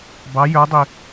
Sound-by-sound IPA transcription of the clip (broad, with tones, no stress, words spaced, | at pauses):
bɑ˨˥jə˞˨˥dˤi˧˩